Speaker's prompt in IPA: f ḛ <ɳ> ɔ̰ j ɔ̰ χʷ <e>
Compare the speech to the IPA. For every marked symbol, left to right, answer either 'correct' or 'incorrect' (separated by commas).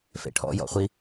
incorrect, incorrect